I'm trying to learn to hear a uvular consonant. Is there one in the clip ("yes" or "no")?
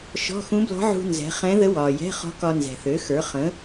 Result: yes